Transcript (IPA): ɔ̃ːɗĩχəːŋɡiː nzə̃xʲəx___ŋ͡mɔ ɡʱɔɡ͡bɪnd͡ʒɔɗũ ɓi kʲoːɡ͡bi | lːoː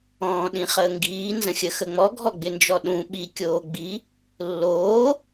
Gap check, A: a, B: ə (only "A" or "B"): B